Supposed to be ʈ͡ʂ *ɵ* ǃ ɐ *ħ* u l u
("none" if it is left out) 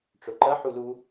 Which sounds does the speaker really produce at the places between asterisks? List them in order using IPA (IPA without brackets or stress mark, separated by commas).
ɵ, ħ